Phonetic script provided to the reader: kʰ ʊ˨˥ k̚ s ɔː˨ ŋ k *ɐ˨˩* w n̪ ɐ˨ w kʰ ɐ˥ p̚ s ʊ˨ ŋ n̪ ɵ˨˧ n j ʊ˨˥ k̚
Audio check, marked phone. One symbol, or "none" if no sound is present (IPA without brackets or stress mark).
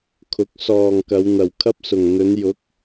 ɐ˨˧